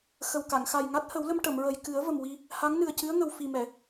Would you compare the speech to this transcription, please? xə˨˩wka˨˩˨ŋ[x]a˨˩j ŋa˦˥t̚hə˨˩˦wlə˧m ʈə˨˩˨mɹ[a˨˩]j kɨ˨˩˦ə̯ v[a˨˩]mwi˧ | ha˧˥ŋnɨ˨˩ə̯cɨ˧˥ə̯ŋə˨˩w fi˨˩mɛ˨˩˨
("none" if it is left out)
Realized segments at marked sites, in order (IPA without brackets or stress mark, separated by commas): x, ə˨˩, ə˨˩